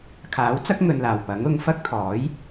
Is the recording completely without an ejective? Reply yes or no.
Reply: yes